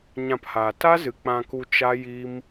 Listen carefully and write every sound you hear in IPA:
ɲã˧phaː˨ ta˦zɨ˨ k͡pã˧ku˧ t͡ʃa˦ji˦m

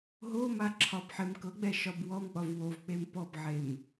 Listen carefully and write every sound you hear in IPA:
ɦoma ǁʰɒbħemkɤɡ͡bɛ ʃɒbwɔmɡ͡bɒv wovk͡pem pɔbʕem

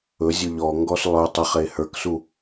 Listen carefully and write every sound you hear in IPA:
ɵzʲɵ ʎɔŋɡɔs lˠœ tˤəχe hə˞ksu

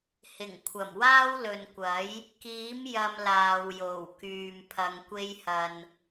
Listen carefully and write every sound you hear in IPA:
hɪ˨˩ŋ kʷʰɐ˨˩mwaː˥wlɵ˨nkʷɐ˨˥j | kiː˨˥m jɐ˧mlaː˨wjo˨˩wkyː˨m pʰɐ˧ŋkʷe˥jhɐ˧n

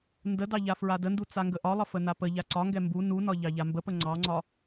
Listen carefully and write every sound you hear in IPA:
ndədɑ ʎafɹadəndu t͡saŋɡəʔɒlˠə fənapəʎa ǀɒŋɡɛ mbu nunɒ ʎɑʎambəpə ŋ͡ǀɑŋ͡ǀɒ

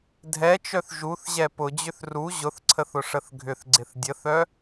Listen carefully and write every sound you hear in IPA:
dʱɛt͡ʃœθ ʒuθʑɛ pʊd͡ʑʏθ ru ʑʊθǀʰəθ ʊʂəθɡʱʏθɡ͡ǀɪθ dʲəθœ

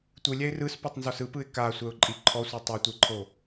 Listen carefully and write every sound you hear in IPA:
tʷɯlʲɛɪ̯ rɯsputˤnzɔs ɯpɯɪ̯ kasʷɛʊ̯ǃʼi ǃʰɔsʷe tˤotʷeǃʰo

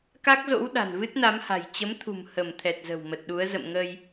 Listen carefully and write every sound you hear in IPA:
ka˦˥k̚zo̰˧˥w ɗa̤˨˩nvɨ˦˥t̚na˨˦mha̤˨˩j t͡ɕə˨˦mt̪ʰṳ˨˩m hə˧˩m t̪ʰɛ˨˩t̚zə̤˨˩wmə˨˩t̚ɗu˨˦ə̯ zə̰˧˨mŋə˧j

